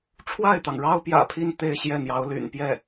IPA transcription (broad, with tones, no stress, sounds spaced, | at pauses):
ʈ͡ʂʰ w a˥˩ ɪ̯ t̪ ɑ˩ ŋ ɻ ɑ˥ ʊ̯ p j ä̰˨˩ pʰ i˥˧ n t̪ e˥˧ ɪ̯ ɕ j ɛ˥˩ n̪ j ɑ˧˥ ʊ̯ l y̰˨˩ n p j ɛ˥˩